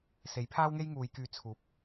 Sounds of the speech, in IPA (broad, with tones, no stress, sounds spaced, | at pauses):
s e˨˥ j pʰ aː˥ w ŋ e˥ j ŋ uː˨˧ j k yː˧ t͡sʰ uː˨ p̚